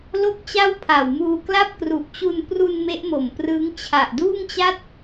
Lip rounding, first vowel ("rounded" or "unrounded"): rounded